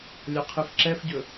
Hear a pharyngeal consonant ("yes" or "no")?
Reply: no